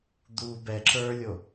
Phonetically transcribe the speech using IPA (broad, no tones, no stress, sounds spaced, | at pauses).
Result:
d̪ u b ɛ ǁ ə˞ lʲ o